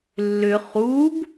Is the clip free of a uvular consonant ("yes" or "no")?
no